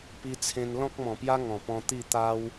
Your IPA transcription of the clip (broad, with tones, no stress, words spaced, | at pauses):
pi˧t͡sʰẽ˧n lɔ̃˦k̚mɔ̃˨˩pja˦ ŋɔ̃˨˩pɔ̃˧ t̪i˥˧t̪a˦w